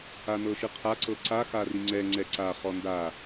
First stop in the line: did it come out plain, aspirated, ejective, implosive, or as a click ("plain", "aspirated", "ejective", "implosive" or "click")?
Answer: aspirated